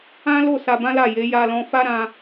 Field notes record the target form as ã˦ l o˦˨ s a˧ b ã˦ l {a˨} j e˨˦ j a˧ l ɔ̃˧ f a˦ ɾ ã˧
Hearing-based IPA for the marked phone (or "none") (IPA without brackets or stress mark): a˦˨